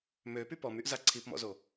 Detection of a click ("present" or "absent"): present